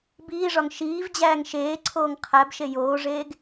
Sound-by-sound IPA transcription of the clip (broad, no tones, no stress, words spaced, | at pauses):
biːʐɒŋ ʃiːvd͡ʑæːŋ ʃeːǀʰoːŋ qʰæbʃe joːʐeːɡ